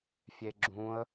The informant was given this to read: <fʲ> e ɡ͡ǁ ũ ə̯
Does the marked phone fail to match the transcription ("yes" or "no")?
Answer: no